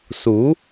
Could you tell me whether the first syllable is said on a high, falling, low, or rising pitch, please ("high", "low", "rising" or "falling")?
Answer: rising